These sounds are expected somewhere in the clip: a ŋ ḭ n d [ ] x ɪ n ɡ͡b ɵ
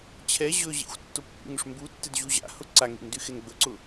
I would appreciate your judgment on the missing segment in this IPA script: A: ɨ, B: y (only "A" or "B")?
B